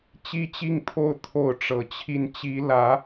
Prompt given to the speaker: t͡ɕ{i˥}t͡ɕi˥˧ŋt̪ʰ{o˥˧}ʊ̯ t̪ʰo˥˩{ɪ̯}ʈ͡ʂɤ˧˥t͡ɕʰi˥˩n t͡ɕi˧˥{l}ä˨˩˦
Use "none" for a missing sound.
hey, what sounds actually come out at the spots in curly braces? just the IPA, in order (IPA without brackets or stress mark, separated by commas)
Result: i˥, o˥˧, ʊ̯, l